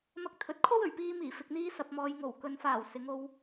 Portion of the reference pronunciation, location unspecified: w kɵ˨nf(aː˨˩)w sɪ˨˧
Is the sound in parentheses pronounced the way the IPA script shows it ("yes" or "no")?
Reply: yes